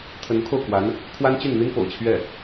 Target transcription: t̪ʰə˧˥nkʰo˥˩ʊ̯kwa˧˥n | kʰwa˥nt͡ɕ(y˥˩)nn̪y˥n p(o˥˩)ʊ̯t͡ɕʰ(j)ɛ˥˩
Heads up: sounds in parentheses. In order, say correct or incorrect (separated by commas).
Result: correct, incorrect, incorrect